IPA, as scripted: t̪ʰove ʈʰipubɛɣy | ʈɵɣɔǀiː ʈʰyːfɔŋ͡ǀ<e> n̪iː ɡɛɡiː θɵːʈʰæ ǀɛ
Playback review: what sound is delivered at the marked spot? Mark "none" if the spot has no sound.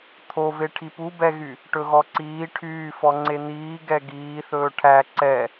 e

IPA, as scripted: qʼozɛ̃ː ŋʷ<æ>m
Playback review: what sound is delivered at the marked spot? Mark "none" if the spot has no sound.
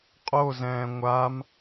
a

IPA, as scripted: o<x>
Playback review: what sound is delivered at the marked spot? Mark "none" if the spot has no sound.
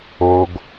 ɡ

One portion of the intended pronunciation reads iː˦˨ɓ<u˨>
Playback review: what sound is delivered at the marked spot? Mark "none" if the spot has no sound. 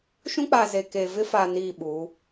u˨˦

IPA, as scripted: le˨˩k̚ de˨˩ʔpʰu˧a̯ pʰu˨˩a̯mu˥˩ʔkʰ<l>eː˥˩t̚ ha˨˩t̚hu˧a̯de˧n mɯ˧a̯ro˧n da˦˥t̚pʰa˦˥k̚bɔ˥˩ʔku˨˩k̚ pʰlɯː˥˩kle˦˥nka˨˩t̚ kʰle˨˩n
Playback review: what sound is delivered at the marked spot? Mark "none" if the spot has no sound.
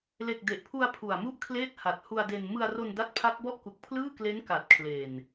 l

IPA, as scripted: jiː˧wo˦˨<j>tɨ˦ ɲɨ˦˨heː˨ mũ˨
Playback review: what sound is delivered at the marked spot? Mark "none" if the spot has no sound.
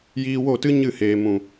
none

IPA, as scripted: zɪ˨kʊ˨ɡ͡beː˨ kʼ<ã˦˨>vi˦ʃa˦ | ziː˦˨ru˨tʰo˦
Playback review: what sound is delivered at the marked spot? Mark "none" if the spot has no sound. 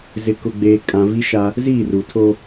ã˨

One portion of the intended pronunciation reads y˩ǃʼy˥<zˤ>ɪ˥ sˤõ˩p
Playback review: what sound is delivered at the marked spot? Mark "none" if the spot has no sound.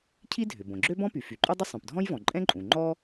dˤ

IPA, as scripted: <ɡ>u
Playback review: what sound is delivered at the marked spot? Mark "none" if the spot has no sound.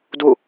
d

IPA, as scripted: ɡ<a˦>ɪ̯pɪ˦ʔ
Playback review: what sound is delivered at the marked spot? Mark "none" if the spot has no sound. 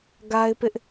a˦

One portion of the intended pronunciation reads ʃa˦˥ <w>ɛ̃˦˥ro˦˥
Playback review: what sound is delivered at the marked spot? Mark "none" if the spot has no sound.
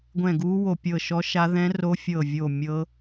ð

